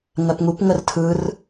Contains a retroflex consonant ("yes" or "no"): no